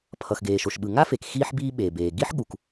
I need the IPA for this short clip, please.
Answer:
pʰʌ˩xɡeː˩ʃo˩ʃɓɯ˩ ŋa˥fe˩k xiː˥ħbiː˥ɓeː˩beː˩ ɡi˥ħɠu˩k

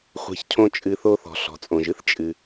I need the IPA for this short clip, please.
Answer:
χʷe̤˩çcʰõ˨t͡ʃʼɨ˩θo˨ θɔ̤˩ɬɔ̤˩t͡sʼõ˩ʒɨ˥θ t͡ʃʼɨ˩

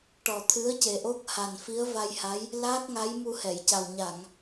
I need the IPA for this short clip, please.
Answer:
ʈɔ˨˩t̪ʰɨ˧˥ə̯ ce˨˩ʔo˦˥k̚ ha˨˩n fi˧˥ə̯va˧jha˧˥j | laː˦˥k̚ŋa˧˥j mu˧hɛ˨˩˨jca˨˩w ɲa˨˩˨ŋ

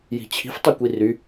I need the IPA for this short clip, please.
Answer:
ji̤t͡ɕʰi̤f tˤukʷiry

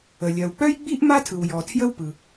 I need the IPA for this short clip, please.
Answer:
ə˩ lʲɜ˩wk͡pœ˥jɡ͡bi˥ʔ ma˥tʰɯ˩wjɔ˩ tʰjə˥wpɯ˩

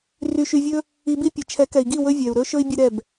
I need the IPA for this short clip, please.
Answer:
ry˧ʃy˧vʲɵ˦ | i˧bi˦pʲɨ˨ t͡ʃʰɛ˨˦kɛ˨i̯ɡi˦˨ wɵ˦vʲɛ˨u̯ɾɵ˦ʃɵ˦i̯ bʲɨ˦ɾɛ˦˨b

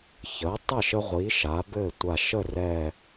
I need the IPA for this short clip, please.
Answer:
çəː˩˥tˤə˥˩ ʃə˦ʁʷi˩˥ ʃaː˩˥bɘː˥˩tʷa˧˩ ʃə˥˩rɛ˧˩

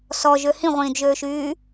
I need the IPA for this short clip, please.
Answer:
sɔʒø hĩʁʷĩːdʒøːʃyː

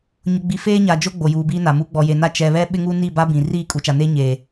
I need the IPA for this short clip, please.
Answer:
ɲʊ˨ɡ͡bi˨ feː˦ɲa˨d͡ʒo˦ ɡ͡bo˨juː˨biː˦na˨ mu˨˦ɡ͡bɔ˨je˨na˦ t͡ʃɛ˨βɛ˦ ɓɪ˦ŋu˦ni˦˨ba˦ bĩ˨ riː˦˨kʼu˨ t͡ʃa˨neː˦ ɲeː˨

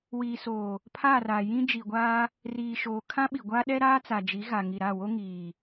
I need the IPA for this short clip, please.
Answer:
wiː˨soː˨ | pʰa˦˨ra˨ jĩ˦d͡ʒi˨ɡʷaː˦ | riː˨ʃoː˨ kʰã˦ɓi˨ɡʷa˦ ɗɛ˦ɾaː˦t͡sa˨d͡ʒi˨˦ ɣa˨ ŋi˨ɾa˦˨wo˦ ŋiː˨

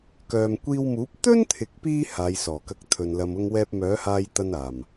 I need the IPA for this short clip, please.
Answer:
kœː˨mkʷiː˧wmuː˨˥p̚ t̪ɵ˥nt̪ʰɪ˨k̚piː˧ haː˨˧jsɔː˨˩kɐ˧k̚ t̪ʰɵ˨nlɐ˧mʊ˥ŋwɛː˥p̚ mœː˨˥haː˧jt̪ɐ˧n aː˨˩m

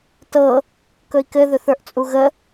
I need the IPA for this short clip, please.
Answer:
tɤ | kɵi̯kɘ ðɵθə˞ʔt͡sʼuɣə

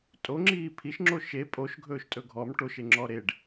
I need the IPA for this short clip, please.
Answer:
tʼoŋ͡ǁiː pʰiʃŋ͡ǁo ʃe pʼoʃɡʱɵːʃtʼɵ ɡʱɔm ʈoʃeŋ͡ǁɔ ɾeɖ

